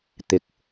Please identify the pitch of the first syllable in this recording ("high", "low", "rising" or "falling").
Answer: low